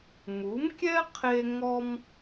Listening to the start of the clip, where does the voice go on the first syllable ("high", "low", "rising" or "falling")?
rising